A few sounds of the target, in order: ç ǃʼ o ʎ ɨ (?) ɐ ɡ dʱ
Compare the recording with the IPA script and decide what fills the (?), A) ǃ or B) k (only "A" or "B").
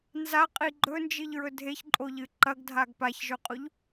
A